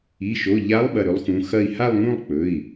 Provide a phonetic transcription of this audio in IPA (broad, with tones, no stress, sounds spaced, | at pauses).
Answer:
i˩˧˩ ʃ o˩˧˩ ʎ a˧˥ lˠ ɓ ɐ˩˧˩ ɾ ɵ˧˥ lˠ x ũ˩˧˩ x ɐ˥˧ i̯ h a˥˧ lˠ ŋ ũ˥˧ lˠ k͡p ɵ˩˧˩ i̯